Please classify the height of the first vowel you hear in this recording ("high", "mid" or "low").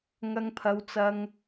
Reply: low